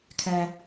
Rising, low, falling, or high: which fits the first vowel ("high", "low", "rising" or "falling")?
high